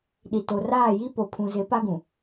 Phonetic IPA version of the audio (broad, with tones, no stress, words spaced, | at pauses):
ɗi˨to˨raː˦˨ji˦ po˨pʰũ˨zɪ˨˦ pa˦ɡũ˨